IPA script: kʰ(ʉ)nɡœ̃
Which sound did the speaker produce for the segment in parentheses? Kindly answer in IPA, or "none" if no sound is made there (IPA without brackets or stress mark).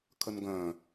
ə